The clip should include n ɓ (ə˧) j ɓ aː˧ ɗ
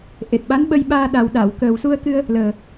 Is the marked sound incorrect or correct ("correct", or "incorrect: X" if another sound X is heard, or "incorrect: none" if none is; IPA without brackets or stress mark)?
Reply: correct